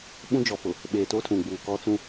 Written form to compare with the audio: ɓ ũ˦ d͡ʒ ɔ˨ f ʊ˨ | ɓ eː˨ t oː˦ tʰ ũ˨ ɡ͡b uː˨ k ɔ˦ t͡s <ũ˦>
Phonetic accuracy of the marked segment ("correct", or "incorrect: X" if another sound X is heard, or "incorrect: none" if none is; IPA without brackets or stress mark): correct